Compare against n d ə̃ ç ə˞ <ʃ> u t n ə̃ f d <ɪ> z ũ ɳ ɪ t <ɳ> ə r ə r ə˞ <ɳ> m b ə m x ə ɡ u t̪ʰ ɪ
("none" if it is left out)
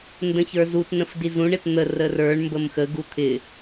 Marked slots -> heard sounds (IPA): z, i, n̪, ɳ

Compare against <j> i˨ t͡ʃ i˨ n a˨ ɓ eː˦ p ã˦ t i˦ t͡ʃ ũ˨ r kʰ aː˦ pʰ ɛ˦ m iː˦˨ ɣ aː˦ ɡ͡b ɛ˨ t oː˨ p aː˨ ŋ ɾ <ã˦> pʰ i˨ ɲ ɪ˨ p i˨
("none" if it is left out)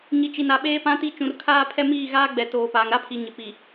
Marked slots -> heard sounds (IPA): ɲ, a˦

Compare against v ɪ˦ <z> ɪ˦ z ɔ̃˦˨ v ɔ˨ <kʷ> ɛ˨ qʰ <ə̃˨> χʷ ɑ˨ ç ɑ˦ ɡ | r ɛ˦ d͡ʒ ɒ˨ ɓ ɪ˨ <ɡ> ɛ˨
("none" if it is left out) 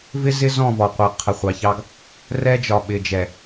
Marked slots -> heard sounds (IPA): z, qʷ, ə˨, d͡ʒ

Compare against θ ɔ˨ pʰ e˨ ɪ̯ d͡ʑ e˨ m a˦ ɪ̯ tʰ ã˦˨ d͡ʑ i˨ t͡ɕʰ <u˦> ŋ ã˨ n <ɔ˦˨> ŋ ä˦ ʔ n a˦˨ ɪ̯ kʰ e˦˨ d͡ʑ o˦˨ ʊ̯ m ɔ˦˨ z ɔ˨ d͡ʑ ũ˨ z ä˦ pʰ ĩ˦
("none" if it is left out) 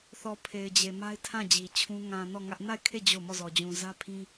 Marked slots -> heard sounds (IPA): ũ˦, ɔ˦˨

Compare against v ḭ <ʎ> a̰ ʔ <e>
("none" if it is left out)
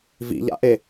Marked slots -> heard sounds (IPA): ʎ, e

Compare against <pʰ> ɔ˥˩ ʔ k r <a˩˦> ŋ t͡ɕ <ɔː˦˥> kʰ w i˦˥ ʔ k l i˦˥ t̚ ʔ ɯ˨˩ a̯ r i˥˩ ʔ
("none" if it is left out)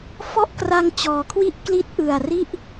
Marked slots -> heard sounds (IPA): f, a˧, ɔː˩˦

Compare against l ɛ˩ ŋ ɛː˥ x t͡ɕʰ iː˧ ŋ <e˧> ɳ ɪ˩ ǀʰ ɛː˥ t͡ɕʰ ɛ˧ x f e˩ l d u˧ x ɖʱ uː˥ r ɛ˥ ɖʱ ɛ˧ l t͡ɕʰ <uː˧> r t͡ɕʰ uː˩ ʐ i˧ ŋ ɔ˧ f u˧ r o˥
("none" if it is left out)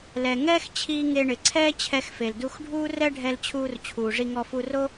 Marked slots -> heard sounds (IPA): e˧, uː˧

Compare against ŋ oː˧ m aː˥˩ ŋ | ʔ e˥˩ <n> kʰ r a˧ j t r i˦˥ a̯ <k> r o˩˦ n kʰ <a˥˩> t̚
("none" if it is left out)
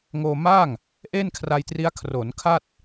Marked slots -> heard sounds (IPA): n, kʰ, a˥˩

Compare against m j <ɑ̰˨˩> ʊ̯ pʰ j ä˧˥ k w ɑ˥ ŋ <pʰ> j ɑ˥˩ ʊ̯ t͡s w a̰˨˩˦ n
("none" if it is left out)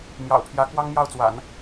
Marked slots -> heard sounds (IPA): ɑ̰˨˩, m

